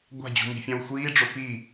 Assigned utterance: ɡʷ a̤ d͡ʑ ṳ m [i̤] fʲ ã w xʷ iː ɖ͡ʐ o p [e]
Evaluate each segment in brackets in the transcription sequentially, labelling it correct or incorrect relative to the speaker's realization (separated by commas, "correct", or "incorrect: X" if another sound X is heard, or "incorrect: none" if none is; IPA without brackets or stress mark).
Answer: correct, incorrect: i